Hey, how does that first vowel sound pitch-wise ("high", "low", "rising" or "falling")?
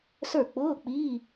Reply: falling